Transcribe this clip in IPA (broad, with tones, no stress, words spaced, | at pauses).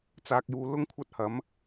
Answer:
t͡saː˨k̚juː˨ lʊ˥ŋkʷʰɐ˥t̚hɐ˨˥m